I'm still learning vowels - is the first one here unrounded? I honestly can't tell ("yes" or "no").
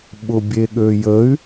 no